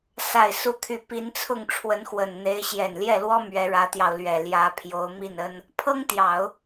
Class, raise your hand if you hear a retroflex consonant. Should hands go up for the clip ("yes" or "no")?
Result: yes